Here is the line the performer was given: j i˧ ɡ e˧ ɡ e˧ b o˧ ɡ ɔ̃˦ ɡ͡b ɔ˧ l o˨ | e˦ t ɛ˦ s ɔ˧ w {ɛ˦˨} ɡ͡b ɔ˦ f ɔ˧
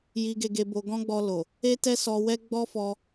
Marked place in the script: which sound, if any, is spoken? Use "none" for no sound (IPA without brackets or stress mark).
ɛ˦